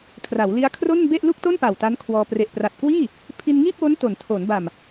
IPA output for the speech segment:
kʰ r a˩˦ w l i˦˥ a̯ kʰ r o˥˩ n b e˥˩ ʔ l u˥˩ k̚ t o˥˩ n p a˨˩ w t a˦˥ n kʰ w ɔː˧ p r e˨˩ ʔ p r a˨˩ t̚ k w iː˥˩ | pʰ i˧ n ŋ iː˥˩ p̚ w o˦˥ n t o˩˦ n tʰ o˩˦ n b a˨˩ m

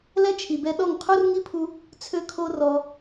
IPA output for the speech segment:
l ɛ˦ t͡ʃʰ i˨ b ɛ˧ ɗ ɔ˦˨ ŋ qʰ u˦ r ŋ i˦ pʰ u˧ | t͡sʰ ø˦ kʰ o˦ r ɔ˧

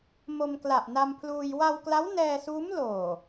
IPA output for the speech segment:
m o˧ m k l a˨˩ ʔ n a˧ m pʰ l uː˧ j w a˧ w k l a˦˥ w n ɛː˧ s uː˦˥ m l oː˨˩

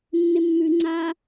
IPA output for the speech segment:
nː ɪ mː ʉ ŋ͡ǀ a

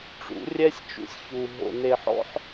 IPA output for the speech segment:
ʈ͡ʂ ṵ˨˦ rʲ ɛ˦ sʲ t͡ʃ ṵ˦ sʲ ç u˨ ɦ o̰˨ n e˨ ħ ɔ̰˦ ħ

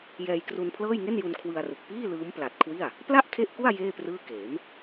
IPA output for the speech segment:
j ɛː˧ j k r u˧ n pʰ l ɤː˥˩ j ŋ e˥˩ n j u˧ n kʰ w ɯ˧ a̯ r ɯ˨˩ k̚ p iː˥˩ l ɯː˦˥ m p l a˨˩ t̚ kʰ w i˥˩ a̯ | p l a˥˩ ʔ kʰ e˦˥ ʔ k u˥˩ a̯ j eː˥˩ p r ɯː˥˩ k eː˩˦ m

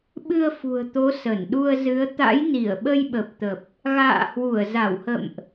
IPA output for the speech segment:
ɓ ɨ˧ ə̯ f ṳ˨˩ ə̯ t̪ o˨˦ s ə˧˩ n ɗ u˧ ə̯ z ɨ˨˦ ə̯ t̪ a̰˧˥ j n i˧˩ ə̯ ɓ ə˧ j ɓ ə˨˩ p̚ t̪ ə˨˩ p̚ | ɣ a̰ː˧˨ h w u˧˩ ə̯ z a˧˩ w h ə̰˧˨ m ʔ

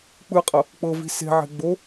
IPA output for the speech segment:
k͡p ɯ qʼ ɤ | k͡p ɤ v i̤ s e̤ ʕ e̤ ɡ͡b o

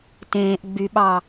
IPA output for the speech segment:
t ẽː ʔ ɡ͡b y ɓ ɑ

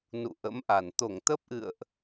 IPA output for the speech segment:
n ṵ˧˨ ʔ ə̰˧˥ m ʔ a˧˩ n t̪ o˧˩ ŋ t̪ ə˦˥ p̚ ʔ ɨ̰˧˨ ə̯ ʔ

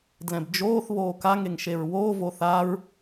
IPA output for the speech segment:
d l ɛ̃ b d͡ʒ oː θ β oː k a ŋ e ŋ ʃ e ɹ w oː v o θ a ɹ

